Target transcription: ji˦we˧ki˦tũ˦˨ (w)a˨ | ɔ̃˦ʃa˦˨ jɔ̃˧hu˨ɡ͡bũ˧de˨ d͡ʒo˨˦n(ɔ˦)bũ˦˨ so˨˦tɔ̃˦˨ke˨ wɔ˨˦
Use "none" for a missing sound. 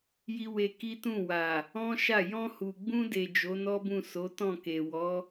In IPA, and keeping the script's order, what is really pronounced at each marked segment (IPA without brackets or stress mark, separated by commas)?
w, ɔ˦